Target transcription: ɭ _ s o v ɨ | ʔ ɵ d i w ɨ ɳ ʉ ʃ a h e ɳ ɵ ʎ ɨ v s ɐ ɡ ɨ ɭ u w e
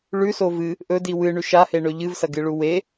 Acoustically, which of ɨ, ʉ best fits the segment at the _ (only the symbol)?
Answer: ʉ